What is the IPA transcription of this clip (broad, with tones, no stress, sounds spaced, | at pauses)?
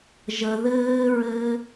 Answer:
ʒ ə˨ ð ɘː˧ ɹ ɘː˧